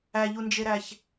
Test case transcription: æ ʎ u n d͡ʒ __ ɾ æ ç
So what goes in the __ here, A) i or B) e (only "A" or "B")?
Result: B